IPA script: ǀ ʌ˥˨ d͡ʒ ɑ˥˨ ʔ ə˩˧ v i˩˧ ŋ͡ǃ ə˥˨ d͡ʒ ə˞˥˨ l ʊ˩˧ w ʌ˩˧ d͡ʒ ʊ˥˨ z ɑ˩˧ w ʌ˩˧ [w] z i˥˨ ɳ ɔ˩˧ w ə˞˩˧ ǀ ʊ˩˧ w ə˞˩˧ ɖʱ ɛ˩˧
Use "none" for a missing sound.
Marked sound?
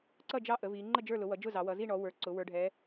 none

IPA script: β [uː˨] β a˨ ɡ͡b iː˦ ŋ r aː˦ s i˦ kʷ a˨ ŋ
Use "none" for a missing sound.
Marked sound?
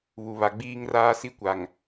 u˨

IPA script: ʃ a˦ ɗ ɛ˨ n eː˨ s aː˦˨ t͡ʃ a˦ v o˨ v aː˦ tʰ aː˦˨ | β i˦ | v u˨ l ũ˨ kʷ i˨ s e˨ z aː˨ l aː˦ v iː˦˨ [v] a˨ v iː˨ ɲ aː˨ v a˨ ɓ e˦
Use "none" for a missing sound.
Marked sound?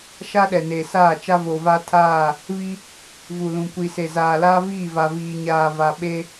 v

